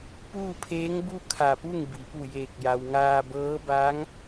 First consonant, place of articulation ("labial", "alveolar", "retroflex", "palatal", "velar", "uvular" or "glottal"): labial